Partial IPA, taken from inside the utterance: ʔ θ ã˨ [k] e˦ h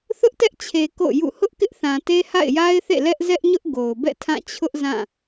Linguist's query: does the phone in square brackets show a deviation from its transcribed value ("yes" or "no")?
yes